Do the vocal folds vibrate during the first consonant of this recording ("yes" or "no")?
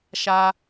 no